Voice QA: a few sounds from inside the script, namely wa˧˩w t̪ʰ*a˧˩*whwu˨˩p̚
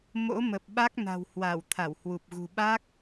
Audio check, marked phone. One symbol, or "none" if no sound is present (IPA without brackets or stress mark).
a˧˩